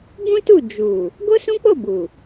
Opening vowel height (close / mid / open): close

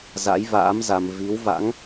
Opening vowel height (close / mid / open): open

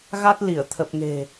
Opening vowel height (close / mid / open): open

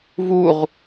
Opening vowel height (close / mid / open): close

